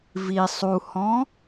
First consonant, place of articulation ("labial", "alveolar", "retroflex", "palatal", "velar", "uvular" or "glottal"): labial